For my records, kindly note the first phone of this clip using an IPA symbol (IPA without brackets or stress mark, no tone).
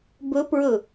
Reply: b